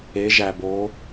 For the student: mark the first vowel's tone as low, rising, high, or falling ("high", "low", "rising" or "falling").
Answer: rising